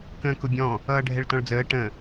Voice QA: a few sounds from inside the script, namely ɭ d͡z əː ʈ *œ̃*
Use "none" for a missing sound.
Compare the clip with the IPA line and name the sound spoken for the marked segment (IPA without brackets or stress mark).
ə̃